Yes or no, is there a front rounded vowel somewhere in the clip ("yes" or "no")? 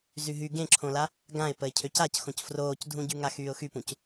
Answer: yes